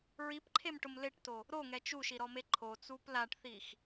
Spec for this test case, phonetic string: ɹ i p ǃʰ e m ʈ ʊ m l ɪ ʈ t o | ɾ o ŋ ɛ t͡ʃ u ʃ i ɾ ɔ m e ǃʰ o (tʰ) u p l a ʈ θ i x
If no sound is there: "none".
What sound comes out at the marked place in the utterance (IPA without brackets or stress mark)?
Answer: t͡s